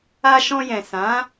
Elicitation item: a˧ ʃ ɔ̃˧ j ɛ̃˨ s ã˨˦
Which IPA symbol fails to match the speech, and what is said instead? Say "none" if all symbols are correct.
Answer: none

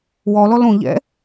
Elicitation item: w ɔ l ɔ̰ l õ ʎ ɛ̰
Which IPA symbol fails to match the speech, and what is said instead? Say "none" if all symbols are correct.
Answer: ɔ̰ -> ɔ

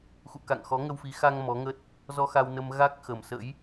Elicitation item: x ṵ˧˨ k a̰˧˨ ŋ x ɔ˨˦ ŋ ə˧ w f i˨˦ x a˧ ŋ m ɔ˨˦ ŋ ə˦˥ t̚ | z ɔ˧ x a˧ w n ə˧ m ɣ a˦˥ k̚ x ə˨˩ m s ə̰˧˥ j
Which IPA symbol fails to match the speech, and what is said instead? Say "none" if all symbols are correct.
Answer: none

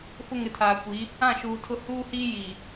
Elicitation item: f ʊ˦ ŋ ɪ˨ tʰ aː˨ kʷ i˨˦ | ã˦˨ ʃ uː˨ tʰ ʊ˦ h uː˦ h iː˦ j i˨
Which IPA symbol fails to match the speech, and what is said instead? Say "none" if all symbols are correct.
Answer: none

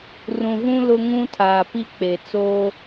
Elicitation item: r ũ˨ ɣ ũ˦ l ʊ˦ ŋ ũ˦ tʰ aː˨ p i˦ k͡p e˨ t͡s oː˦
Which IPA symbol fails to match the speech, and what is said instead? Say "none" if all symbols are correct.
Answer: none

